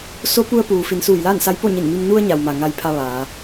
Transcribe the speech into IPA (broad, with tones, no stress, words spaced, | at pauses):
so˧˥ pu˧ə̯puː˩ fi˩˧nsuː˧˩jlaː˥˨nsa˧˥j po˥˨ɲi˧˩nmi˧m nu˧ə̯ɲa˩wma˩ ŋa˧jpʰa˧ ʋaː˩˧